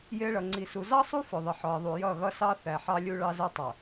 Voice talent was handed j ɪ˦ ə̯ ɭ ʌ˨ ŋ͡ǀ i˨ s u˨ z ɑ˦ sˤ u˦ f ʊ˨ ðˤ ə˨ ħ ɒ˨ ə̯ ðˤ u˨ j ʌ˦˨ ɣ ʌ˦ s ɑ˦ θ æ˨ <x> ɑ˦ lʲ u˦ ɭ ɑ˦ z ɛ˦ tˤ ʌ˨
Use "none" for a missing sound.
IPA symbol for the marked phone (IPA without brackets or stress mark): ħ